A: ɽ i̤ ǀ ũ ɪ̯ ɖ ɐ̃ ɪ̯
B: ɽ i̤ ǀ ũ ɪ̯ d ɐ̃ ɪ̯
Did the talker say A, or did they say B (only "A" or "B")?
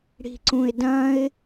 B